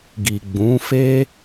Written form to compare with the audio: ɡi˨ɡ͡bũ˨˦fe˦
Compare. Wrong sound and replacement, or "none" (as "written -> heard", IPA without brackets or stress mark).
none